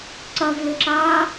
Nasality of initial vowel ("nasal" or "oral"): oral